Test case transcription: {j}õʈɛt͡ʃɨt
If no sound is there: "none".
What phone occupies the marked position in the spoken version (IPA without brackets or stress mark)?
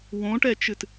w